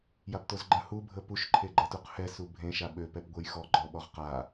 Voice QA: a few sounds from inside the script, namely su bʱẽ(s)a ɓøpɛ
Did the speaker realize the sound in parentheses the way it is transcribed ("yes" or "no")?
no